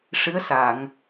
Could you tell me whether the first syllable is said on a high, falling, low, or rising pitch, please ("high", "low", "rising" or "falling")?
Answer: rising